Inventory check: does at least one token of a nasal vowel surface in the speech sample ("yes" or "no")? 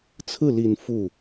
no